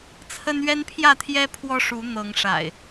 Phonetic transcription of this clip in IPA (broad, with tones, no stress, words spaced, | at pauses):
t͡sʰə˦nɥɛ˦npʰjä˥˨t̪ʰjɛ˦ pʰwɔ˦ʂu˨˦ n̪ɤ˨˦ŋʂa̰˨˩ɪ̯